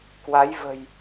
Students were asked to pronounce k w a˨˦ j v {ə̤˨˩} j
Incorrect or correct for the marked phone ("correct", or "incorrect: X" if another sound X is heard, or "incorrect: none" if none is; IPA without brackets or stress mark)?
correct